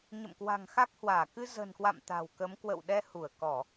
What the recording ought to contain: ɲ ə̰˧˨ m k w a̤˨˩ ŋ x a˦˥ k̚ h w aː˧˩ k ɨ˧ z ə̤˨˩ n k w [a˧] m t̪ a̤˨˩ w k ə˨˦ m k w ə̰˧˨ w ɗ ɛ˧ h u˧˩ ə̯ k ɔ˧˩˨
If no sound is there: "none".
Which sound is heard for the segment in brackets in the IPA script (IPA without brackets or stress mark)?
a̰˧˨